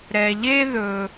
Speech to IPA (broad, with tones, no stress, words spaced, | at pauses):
ɾɛ˧ʎe˦ ðɵ˦